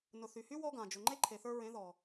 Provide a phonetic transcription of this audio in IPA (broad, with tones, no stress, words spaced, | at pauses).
nʊ˨θy˨hy˦ wɔ˦ɡã˨ d͡ʒʊ˨ŋ͡ǃe˦ ǃʰe˨θə˞˧ɹẽ˨˦ðɔ˨